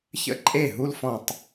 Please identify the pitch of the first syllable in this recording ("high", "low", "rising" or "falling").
high